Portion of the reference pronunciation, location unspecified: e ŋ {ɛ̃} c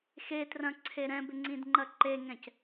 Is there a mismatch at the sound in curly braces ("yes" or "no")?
no